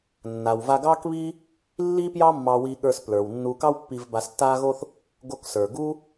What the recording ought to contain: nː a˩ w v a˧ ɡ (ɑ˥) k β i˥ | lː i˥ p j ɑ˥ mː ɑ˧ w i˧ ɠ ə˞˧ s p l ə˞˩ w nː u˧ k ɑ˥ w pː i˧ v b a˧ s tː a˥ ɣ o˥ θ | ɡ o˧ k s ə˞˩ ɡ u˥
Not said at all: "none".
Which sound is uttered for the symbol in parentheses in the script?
ɑ˥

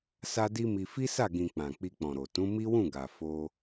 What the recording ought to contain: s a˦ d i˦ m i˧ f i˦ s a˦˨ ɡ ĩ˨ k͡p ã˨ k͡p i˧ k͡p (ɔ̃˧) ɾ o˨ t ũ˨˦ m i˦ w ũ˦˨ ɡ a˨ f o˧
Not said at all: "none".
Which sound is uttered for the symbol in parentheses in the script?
ɔ̃˨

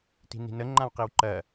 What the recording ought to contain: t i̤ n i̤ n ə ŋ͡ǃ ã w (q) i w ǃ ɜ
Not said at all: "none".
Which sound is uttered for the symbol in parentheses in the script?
q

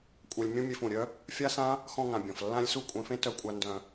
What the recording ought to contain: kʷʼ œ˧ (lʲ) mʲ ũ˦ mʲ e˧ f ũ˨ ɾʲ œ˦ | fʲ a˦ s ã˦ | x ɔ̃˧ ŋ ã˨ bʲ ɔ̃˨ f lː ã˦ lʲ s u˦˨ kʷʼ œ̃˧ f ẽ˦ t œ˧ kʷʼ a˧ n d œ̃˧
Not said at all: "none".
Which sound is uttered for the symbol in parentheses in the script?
lʲ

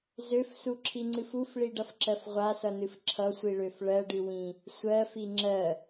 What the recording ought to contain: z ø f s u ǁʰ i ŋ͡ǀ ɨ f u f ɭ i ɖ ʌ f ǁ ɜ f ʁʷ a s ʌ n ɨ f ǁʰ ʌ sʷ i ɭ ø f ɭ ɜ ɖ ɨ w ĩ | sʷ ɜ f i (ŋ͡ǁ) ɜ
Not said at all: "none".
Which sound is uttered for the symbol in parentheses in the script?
ŋ͡ǁ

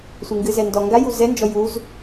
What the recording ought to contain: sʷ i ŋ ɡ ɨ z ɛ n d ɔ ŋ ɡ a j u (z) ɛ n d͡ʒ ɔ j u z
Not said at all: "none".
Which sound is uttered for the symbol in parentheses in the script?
z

